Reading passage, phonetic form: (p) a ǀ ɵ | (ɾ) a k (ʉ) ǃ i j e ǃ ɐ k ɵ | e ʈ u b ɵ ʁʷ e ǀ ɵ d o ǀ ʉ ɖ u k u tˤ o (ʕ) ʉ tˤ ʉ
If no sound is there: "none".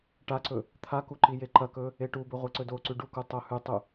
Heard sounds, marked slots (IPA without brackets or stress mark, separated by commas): ʈ, t̪ʰ, u, h